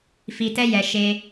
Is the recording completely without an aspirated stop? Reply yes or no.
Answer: yes